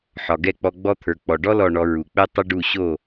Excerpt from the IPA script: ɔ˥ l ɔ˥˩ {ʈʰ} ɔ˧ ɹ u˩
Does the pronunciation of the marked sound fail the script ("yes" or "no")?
yes